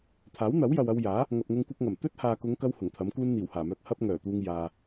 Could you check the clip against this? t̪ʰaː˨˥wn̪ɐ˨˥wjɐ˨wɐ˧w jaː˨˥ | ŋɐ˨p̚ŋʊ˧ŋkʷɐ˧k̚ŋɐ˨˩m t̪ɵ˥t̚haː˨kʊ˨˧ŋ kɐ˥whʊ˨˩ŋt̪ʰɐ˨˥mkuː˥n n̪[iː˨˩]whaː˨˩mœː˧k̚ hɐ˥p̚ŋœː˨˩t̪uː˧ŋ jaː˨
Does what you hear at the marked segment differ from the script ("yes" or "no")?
no